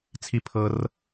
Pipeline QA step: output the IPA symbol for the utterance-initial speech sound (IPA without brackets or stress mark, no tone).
t͡sʰ